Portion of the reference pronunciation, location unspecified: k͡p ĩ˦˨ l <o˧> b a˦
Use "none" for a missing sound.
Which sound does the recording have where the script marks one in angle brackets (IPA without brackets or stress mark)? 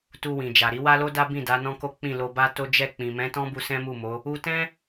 o˧